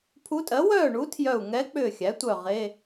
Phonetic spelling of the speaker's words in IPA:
pʰ u˧˥ tʼ ɜ˩˥ w œː˥˨ ɳ u˧˥ tʰ j œ˧˩ u̯ ŋ ɛ˧˥ k͡p ʏː˧˩ xʲ æ˩˥ tʷ œ˧˩ ʁ e˧˥˧

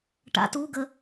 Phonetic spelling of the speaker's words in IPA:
ʈ a̰ t u ɡ ə

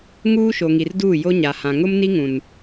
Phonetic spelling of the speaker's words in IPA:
ŋ uː˦ ʃ o˨ ŋ i˨ r d uː˦˨ j o˦ ɲ a˨ h ã˨ ŋ ʊ˦ m n i˦ ŋ ũ˨ n

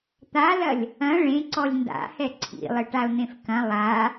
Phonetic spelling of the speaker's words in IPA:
t̪ a l ɐ lʲ | ɐ̃ ɭ ẽ ǀ ɔ lʲ n d a̰ h ɛ ǀʰ ḭ lˠ ɘ ʈ a ʊ̯ n̪ ẽ f k ɐ̃ lˠ a

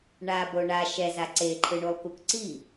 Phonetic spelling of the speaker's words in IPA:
ɳ a b o ɳ a ʃ ɛ z a ǀ e ǃʰ ɯ ɳ u lˠ k u k ǀ i

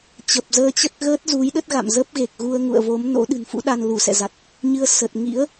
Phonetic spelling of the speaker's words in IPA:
t͡ɕ ə˨˩ p̚ z əː˧ t͡ɕ ə˦˥ t̚ ɣ əː˦˥ t̚ z u˨˦ j ɗ ə˦˥ t̚ ɣ a̰˧˨ m z ə˦˥ p̚ ɣ e˨˩ k̚ ɣ u˧ ə̯ ŋ ṵ˧˨ ə̯ v o˨˦ m n o̰˧˥ ɗ ɨ̤˨˩ n f ṵ˧˥ ɗ a˧ n l u˧˩ s ɛ̰˧˨ z a˨˩ t̚ | ɲ ɨ˧ ə̯ s ə˨˩ t̚ ŋ ḭ˧˥ ə̯

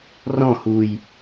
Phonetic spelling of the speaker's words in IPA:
r ɔ̃ h u j

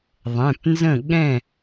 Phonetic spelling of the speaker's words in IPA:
ðˤ ɛ̃˩˧˩ p n z ə̃˥˨ ɠ ɛ̃˥˨

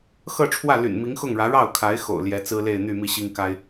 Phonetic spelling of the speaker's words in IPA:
x ɤ˥˧ ʈ͡ʂʰ w ä˥˩ l y̰˨˩ n m i˧˥ ŋ x ʊ˥˩ ŋ ɻ ä˧˥ ɻ ɑ˥˩ ʊ̯ kʰ a˧˥ ɪ̯ x o̰˨˩ ʊ̯ l j ɛ˧˥ t͡s ɹ̩˥ l e˥˧ ɪ̯ n̪ y˥˧ m i˥˩ ɕ i˥ ŋ k a˥ ɪ̯

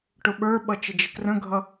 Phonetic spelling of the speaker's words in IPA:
ʈ ʊ ɓ ə˞ ɓ ʌ t͡ʃ ɪ d͡ʒ ɪ k r ə̃ ɡʱ ʌ

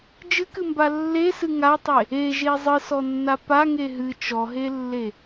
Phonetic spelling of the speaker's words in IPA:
d͡ʒ ɨ k ɨ m b a lː e s ɨ ŋ a tˤ e | e ʒ e zˤ ɨ s ɔ nː a p a ŋ e ɦ ɨ t͡ʃ ɔ ɦ e lː e

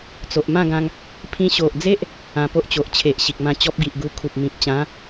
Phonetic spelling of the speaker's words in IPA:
t͡s o˨ ʔ m ã˥˧ ɡ ã˧ ŋ | pʰ ĩ˧ ɕ o˨ ʔ d͡z e˦ ʔ | ã˧ p o˦ ʔ t͡ɕ o˨ ʔ t͡ɕʰ e˨ ʔ ɕ i˨ k̚ m ã˧ t͡ɕ ɔ˦ p̚ ɡ i˨ ʔ ɡ u˧ kʰ u˨ p̚ m ĩ˨ p̚ t͡ɕ ã˨˦

